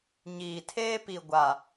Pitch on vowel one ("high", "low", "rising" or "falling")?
low